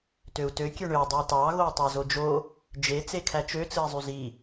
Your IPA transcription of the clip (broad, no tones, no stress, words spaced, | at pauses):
tøu̯tø kʲøɳø dˤætɑ ɣoi̯tˤɑzod͡ʒo | d͡ʒe t͡sekʰæt͡ʃø t͡sɯi̯zˤyzi